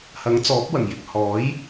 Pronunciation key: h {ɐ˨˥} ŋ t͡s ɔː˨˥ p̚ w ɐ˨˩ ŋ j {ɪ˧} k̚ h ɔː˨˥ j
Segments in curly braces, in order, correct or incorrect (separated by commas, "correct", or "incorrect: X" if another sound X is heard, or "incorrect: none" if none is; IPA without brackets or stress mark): correct, incorrect: ɪ˨